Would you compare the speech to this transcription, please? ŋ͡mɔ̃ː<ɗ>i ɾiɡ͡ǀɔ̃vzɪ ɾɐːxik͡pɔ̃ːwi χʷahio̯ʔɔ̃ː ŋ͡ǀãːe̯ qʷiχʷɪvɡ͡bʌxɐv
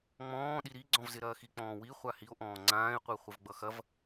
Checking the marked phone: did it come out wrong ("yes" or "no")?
no